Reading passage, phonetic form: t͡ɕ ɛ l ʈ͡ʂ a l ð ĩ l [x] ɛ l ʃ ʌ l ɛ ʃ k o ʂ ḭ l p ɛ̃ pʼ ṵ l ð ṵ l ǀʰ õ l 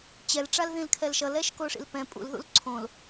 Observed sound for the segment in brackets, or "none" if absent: kʰ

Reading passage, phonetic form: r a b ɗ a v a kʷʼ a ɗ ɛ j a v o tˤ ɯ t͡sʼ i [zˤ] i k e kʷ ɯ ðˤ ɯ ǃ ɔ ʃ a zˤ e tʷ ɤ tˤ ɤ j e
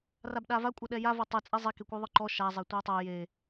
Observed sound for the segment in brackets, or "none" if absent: zˤ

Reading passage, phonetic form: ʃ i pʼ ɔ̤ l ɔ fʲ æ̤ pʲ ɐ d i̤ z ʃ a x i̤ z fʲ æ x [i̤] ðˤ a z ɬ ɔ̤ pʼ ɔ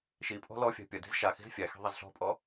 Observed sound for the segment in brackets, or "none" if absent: i̤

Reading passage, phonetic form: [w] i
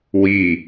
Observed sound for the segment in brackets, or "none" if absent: w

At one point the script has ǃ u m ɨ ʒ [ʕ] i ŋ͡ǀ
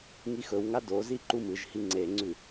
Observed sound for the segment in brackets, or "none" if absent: h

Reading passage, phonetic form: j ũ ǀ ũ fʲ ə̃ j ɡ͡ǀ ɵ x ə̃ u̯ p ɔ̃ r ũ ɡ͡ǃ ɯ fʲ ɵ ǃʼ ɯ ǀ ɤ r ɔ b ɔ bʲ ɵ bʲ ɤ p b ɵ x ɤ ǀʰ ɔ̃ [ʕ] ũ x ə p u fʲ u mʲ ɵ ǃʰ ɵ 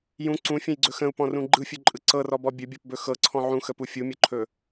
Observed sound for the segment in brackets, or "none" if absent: ʕ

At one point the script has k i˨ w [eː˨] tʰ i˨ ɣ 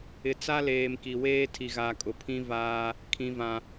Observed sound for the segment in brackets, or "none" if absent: eː˦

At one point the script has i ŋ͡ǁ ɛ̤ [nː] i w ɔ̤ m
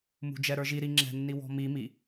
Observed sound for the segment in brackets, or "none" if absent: nː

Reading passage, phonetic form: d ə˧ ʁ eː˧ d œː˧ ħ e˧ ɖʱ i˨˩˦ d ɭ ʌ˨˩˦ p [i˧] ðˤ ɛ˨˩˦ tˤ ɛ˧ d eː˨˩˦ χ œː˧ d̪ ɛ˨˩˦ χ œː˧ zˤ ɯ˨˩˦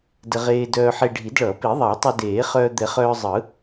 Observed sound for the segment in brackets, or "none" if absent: i˨˩˦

